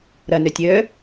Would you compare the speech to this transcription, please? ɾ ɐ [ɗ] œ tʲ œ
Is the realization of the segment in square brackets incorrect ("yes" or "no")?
yes